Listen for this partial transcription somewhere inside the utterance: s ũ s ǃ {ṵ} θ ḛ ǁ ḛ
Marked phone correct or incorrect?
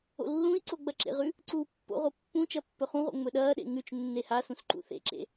correct